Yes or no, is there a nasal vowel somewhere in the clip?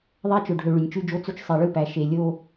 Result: no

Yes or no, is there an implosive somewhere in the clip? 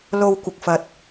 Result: no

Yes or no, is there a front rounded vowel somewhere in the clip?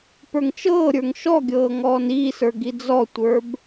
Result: no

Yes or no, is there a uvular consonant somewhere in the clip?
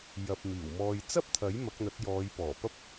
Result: no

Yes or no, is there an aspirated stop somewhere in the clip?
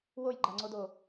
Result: no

